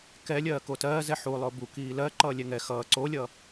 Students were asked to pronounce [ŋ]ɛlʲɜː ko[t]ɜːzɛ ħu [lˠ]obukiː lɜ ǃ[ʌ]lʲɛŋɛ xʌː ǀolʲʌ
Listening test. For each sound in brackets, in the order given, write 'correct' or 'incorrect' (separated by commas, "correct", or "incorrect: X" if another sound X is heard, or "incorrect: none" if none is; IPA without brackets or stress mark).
incorrect: k, correct, correct, incorrect: ʌː